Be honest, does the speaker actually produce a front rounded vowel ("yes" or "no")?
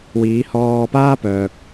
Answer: yes